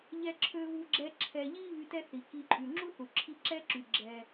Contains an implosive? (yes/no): no